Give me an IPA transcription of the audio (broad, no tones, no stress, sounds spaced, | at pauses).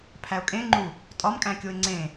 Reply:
pʰ æ ʊ̯ kʼ ẽ ŋ͡ǃ u | tʼ ɒ m kʼ æ̃ kʲ o ɪ̯ ŋ͡ǀ ẽ